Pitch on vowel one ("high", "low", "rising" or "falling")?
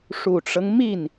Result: low